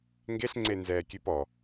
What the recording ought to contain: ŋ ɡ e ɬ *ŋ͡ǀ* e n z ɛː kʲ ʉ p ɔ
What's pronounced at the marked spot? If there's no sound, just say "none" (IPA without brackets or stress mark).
ŋ͡ǀ